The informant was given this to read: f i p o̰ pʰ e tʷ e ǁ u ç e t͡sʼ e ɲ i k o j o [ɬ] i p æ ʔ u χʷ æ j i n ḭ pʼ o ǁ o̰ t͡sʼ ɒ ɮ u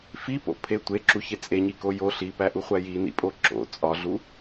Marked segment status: correct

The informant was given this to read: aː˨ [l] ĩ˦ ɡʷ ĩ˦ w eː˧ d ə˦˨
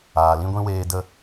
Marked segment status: correct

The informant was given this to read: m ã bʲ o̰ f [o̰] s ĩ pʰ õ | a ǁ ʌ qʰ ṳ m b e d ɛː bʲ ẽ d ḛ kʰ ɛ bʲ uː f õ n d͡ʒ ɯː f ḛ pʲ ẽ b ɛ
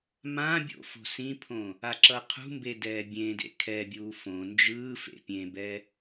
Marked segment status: incorrect: o̤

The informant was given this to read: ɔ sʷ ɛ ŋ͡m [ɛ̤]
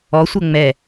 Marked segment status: incorrect: ɛ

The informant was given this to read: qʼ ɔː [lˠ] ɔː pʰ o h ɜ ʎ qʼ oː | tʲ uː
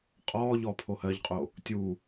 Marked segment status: incorrect: ʎ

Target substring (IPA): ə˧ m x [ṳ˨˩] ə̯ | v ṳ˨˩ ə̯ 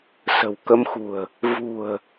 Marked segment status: correct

